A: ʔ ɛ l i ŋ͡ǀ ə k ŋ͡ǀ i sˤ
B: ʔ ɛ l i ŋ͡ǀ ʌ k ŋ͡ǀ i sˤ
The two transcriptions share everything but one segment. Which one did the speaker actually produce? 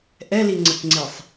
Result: A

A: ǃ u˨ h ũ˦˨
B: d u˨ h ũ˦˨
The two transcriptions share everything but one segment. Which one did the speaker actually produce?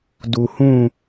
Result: B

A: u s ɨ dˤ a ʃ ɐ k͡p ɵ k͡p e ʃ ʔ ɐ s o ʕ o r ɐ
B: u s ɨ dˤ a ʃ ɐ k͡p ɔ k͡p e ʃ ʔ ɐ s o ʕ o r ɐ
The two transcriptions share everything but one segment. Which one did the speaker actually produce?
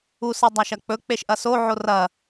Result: A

